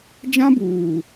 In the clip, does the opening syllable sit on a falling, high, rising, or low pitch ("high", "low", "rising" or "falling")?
high